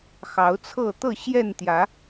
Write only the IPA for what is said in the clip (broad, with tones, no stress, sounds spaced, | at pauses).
x ɑ˨˦ ʊ̯ t͡sʰ ɤ˥˨ t̪ ɤ˥˨ ɕ j ɛ˥˨ n t̪ j ä˨˦